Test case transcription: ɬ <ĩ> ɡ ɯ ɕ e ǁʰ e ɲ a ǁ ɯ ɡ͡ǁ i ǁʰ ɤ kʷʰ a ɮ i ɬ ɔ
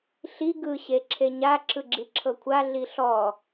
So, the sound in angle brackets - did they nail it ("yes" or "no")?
no